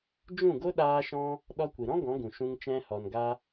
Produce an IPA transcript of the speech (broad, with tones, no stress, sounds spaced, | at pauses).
d͡ʒ ũ˦˨ ɡ o˦ ɗ aː˧ ʃ ɔ̃˧ | ɗ ɔ˧ kʷ i˨ ɾ ɔ̃˦ ɡ ɔ̃˨˦ ɡ ũ˨ ʃ ũ˧ ŋ t͡ʃ ɛ̃˧ h ɔ˨ n ɡ a˧